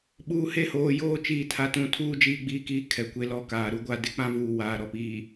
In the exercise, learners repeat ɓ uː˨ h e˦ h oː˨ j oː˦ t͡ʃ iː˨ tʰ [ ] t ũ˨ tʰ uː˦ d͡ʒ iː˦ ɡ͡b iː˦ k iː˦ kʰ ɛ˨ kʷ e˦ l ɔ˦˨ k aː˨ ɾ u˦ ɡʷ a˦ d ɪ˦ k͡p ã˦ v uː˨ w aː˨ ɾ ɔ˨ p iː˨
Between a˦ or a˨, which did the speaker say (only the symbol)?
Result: a˨